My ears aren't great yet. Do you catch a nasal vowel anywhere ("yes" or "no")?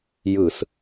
no